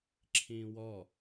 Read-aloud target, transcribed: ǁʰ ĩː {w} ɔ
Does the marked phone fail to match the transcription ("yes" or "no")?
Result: no